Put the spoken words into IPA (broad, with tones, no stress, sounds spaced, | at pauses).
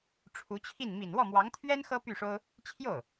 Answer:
ʈ͡ʂʰ u˧˥ t͡ɕʰ i˥˩ n m i˨˩ n w ɔ˥˩ m w ɑ˧˥ ŋ t̪ʰ ɥ ɛ˥ n x ɤ˥ p y˥˩ ʂ o˥ ʊ̯ | t͡ɕʰ j o˥˩ ʊ̯